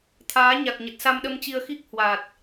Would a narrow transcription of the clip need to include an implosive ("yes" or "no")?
yes